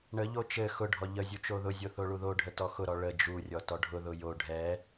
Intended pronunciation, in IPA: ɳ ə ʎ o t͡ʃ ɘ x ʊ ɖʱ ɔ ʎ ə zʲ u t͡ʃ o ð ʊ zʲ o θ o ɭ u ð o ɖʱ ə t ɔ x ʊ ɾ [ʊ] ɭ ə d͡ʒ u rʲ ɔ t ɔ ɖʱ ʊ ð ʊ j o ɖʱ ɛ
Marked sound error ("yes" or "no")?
yes